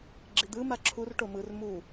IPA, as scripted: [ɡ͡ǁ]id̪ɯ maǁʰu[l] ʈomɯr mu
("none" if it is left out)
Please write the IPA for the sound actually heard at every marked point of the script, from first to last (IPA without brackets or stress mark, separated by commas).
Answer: ɡ͡ǁ, r